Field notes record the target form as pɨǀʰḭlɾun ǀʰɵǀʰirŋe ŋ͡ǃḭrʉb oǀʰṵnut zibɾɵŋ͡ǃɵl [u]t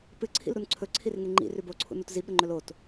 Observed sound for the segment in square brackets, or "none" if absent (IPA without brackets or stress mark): o